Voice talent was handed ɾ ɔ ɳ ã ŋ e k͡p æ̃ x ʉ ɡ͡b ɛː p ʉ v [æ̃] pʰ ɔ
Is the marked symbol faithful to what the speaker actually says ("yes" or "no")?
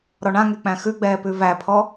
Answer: no